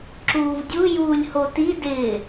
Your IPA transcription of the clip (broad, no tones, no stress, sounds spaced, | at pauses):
ǁ uː v dʲ u j uː lʲ h o t i d ɪː